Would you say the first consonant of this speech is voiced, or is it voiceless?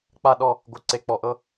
voiceless